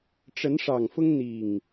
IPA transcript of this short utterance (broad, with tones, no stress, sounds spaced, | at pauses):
ʈ͡ʂ ə˨˦ n ʂ ɑ˨˩ ŋ f ʊ˦ ŋ n̪ i˨˩ ŋ